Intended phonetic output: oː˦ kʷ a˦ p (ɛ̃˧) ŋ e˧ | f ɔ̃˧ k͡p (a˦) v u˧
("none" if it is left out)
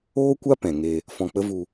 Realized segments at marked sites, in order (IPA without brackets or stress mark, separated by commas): ɛ̃˨, ə˦